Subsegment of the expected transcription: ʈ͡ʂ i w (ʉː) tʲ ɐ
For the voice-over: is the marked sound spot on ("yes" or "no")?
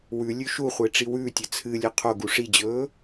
yes